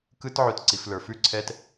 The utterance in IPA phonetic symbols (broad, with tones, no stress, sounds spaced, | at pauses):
k ɯ˧˥˧ t ʕ ʉ˧ t ǀ i˩˧ f l ə˞˩˧ f ʉ˥˨ ǀʰ ɛ˧ t